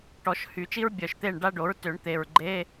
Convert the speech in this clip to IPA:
ʈɔ˨˩˦ʃhy˨˩˦t͡ʃi˥ɹ bʲœ˨˩ʃt̪e˥˨ɳ ɖa˥ɖo˩˥ɹtø˨˩˦ɳ t̪e˨˩ɹɡ͡ǃe˧˥˧

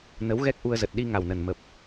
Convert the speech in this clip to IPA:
nə˨˦wɣɛ˦˥k̚ʔu˧ə̯ zə˨˩t̚ɗi˧ ŋa˨˩wnə˨˩n mə˨˩p̚

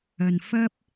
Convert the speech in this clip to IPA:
ɐ˧n fɐ˥p̚

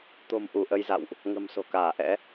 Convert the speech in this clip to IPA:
t̪o̤˨˩m ʔu˧˩ʔə˧jza̰˧˨wʔ | ŋə̤˨˩m so̤˨˩kaː˧˩ʔɛ̰˧˥

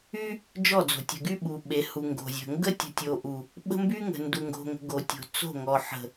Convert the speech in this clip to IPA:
y˦ | d͡ʒɔ˦˨d͡zo̤˨ tʲə̤˨ɡy˦ ɓu˨ɓe˨ hu˨ŋɡo̤˨zʲə̤˨ ŋɡə˦tʲə̤˨ tʲo˨ʔu˨ | ɓə̤˦mby˦ŋə̤˨ ndu˨ŋɡo̤˨ŋə̤˨ ɡo˨tʲo̤˨ t͡so̤˦˨ŋɔ˨ ħə̤˨

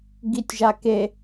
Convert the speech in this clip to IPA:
ɡitʲʒake

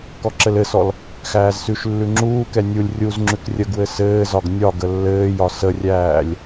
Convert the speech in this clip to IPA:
kɔǁɘlɘsɔl | xæːzsʉʃlːʉ ŋ͡ǁuːkɛ nʲulʲ rʲuzŋ͡ǁʉk rʲəɡwɘ sɘːzɒɡ nʲɒ ɡəlːɘːjɒ sərʲæːlʲ

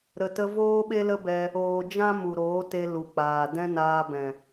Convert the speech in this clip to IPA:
ɾə˨ tə˧ voː˦ɓe˦lə˦bɛ˧ | oː˨ d͡ʒã˦ mu˨ɾoː˨˦te˧ lu˨k͡paː˨ dɛ̃˦naː˧ bɛ̃˨

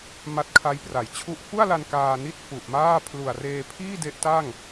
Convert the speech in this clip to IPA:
ma˦˥t̚kʰa˦˥jpra˩˦jt͡ɕʰu˥˩ʔ fu˥˩a̯la˧n kaː˧ni˥˩t̚ fu˨˩ʔmaː˥˩ pʰlu˨˩a̯reː˧pʰiː˥˩ de˦˥ʔta˥˩ŋ

